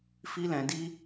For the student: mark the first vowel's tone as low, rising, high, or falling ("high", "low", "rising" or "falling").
high